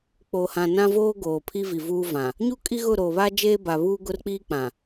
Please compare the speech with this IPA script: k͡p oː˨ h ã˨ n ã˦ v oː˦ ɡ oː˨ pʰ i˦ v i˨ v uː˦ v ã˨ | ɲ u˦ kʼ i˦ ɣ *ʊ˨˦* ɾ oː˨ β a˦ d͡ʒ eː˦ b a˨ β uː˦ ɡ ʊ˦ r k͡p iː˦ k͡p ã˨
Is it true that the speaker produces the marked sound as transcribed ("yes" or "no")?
no